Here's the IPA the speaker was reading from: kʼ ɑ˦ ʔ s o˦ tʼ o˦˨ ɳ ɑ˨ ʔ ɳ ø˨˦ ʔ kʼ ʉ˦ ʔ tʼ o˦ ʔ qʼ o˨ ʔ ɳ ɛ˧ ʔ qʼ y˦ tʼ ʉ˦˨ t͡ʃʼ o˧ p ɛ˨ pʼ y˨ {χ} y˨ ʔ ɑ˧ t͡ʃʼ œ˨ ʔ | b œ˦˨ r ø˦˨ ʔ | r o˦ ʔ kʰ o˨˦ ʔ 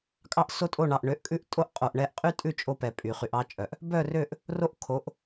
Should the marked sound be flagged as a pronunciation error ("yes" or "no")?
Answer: no